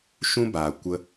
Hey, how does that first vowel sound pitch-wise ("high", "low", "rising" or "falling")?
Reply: high